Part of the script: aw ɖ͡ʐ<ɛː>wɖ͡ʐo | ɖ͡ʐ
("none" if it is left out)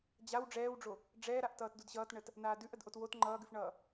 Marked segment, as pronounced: ɛː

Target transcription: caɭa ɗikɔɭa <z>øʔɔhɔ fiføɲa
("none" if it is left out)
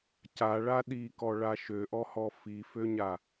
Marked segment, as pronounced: ʃ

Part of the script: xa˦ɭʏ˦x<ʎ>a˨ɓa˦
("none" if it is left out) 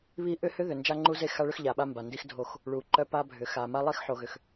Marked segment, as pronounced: ʎ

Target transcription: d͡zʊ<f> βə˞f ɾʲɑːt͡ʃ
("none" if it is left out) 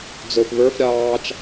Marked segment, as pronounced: f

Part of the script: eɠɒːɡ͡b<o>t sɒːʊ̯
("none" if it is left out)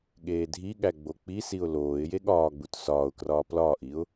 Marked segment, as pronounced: u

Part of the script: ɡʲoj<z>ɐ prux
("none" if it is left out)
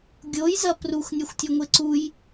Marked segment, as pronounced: z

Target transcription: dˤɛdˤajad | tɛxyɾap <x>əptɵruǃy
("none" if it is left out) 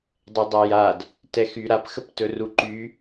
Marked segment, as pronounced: x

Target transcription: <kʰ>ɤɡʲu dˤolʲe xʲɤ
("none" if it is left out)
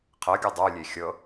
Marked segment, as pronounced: qʰ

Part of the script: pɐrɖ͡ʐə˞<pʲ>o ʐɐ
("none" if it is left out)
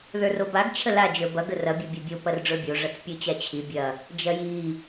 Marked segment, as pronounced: bʲ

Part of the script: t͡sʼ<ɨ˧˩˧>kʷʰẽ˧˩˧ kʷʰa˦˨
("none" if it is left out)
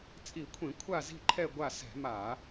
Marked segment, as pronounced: i˧˩˧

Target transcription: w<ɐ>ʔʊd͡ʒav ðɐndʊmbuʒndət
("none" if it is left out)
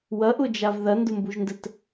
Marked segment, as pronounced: ɐ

